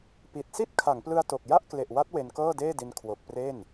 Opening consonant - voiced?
no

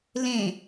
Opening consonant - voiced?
yes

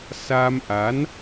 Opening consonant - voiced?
no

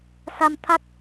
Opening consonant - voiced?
no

